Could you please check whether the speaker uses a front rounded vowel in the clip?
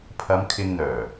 yes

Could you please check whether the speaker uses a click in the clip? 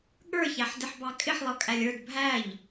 no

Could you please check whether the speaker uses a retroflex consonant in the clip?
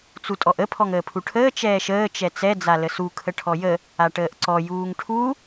yes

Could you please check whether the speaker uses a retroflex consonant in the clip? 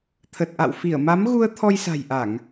no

